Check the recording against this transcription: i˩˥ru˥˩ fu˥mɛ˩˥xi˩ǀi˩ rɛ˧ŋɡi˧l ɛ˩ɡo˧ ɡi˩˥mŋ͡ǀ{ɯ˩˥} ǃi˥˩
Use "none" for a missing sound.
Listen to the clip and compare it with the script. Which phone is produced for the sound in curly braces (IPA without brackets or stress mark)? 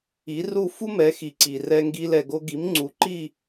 u˩˥